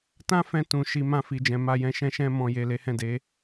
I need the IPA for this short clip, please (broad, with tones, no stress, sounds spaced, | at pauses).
t ã˦ f ɛ̃˧ t ũ˨ ʃ i˨ m ã˧ f i˨ d͡ʒ ɛ̃˨ m a˨ j ɛ̃˨ ʃ ɛ̃˧ ʃ ɛ̃˧ m ɔ̃˨ j e˨ l e˨˦ h ɛ̃˦˨ d e˨˦